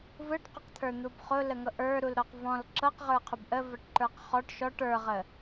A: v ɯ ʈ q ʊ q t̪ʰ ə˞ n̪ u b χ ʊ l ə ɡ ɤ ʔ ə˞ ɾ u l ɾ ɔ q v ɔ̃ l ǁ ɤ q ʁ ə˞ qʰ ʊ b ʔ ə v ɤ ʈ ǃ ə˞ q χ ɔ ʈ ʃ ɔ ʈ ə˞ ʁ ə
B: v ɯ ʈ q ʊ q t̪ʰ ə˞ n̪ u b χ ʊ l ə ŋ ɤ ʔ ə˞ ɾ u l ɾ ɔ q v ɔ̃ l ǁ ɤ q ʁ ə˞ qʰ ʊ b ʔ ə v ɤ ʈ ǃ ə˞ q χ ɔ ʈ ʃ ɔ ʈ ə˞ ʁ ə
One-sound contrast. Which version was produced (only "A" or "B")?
B